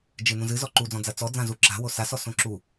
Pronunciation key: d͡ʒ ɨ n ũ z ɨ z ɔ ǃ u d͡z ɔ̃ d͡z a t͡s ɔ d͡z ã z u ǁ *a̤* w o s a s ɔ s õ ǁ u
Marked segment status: correct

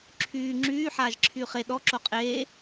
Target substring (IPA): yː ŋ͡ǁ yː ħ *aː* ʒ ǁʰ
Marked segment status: correct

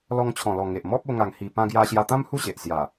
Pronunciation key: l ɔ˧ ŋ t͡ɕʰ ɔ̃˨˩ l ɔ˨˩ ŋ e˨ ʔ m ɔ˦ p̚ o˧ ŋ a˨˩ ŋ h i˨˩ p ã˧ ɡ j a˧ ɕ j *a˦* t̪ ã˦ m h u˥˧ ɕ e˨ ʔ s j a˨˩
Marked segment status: incorrect: a˧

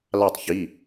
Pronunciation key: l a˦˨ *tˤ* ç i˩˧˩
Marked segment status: correct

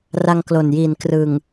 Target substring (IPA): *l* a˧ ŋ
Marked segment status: incorrect: r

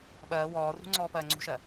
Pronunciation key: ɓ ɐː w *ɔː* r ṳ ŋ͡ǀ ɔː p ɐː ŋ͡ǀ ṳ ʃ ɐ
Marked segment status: correct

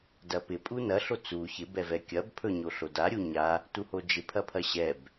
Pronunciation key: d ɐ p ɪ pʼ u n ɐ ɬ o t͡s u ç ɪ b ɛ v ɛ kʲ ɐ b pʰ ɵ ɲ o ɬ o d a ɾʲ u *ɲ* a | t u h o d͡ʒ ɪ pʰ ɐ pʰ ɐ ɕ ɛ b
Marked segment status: correct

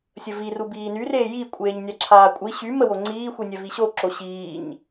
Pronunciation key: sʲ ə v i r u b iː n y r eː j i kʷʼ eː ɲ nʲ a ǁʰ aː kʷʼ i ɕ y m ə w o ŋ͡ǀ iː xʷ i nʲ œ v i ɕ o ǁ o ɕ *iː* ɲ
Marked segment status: correct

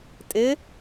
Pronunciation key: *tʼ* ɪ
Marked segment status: correct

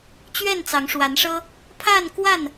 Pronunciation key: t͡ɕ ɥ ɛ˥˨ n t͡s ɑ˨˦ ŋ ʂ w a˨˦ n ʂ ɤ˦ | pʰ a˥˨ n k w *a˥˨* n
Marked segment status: correct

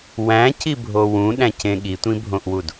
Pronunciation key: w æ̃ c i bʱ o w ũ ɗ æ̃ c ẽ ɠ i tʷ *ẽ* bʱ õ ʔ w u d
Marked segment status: incorrect: ĩ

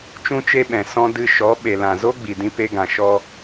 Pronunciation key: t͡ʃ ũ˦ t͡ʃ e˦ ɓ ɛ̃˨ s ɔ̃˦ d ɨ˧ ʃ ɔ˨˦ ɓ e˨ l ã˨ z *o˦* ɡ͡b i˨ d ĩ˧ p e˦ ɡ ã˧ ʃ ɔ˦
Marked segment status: correct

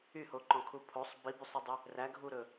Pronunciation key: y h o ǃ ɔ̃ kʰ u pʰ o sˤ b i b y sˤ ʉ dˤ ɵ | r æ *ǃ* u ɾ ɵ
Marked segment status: incorrect: ɡʱ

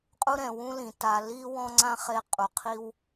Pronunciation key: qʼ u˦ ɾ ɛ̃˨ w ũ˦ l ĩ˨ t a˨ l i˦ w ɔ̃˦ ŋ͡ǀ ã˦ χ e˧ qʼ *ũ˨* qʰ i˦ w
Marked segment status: incorrect: u˨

